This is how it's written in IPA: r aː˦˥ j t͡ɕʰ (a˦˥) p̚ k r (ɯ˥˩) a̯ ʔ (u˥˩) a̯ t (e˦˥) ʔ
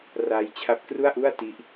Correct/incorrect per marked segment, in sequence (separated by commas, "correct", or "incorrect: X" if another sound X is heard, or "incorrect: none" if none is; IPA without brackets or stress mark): correct, incorrect: u˥˩, correct, incorrect: i˦˥